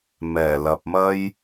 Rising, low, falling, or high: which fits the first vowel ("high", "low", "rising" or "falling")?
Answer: low